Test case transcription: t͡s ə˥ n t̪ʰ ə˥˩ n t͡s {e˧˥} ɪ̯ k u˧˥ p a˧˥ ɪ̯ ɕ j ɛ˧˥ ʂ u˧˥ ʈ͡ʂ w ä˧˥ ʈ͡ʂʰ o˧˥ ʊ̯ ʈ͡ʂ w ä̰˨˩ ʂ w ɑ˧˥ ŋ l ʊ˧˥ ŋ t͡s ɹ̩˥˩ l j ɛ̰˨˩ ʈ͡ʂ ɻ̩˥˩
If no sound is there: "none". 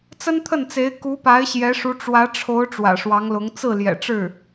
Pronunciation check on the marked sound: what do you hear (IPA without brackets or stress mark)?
e˧˥